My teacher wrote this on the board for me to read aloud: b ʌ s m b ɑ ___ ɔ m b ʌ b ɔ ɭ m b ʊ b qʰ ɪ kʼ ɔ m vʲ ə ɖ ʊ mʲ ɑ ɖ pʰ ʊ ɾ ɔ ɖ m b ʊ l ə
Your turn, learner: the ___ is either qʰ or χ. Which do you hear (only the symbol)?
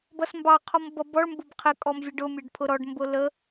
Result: qʰ